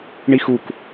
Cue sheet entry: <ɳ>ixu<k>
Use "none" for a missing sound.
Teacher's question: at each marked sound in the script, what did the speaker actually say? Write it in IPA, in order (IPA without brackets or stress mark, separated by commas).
ɳ, k